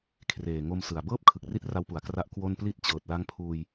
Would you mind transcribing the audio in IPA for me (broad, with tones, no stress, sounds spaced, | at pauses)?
kʰ r eː˨˩ ŋ o˧ m s ɯ˨˩ a̯ b ɤː˥˩ p̚ kʰ ɯ˨˩ k̚ r i˥˩ t̚ r a˦˥ w p u˨˩ a̯ k r a˦˥ ʔ k w o˥˩ n p l i˦˥ t̚ t͡ɕ ɤː˨˩ t̚ l a˦˥ ŋ pʰ uː˧ j